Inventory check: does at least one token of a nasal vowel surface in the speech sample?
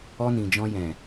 yes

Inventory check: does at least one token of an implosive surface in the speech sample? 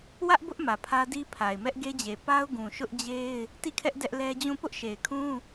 no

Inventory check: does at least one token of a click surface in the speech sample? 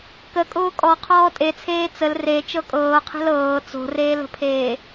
no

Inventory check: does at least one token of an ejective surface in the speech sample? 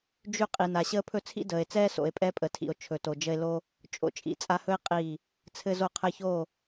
yes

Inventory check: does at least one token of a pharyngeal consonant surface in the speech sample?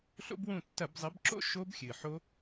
yes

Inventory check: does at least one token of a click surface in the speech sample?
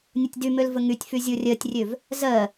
no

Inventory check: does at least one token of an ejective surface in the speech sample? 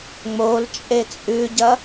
yes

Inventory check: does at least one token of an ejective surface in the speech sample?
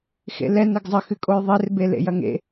yes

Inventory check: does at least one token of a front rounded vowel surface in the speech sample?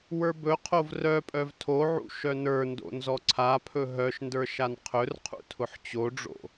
yes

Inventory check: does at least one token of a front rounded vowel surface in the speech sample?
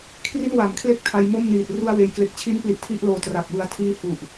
no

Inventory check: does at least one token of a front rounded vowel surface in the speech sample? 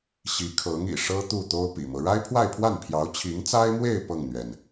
no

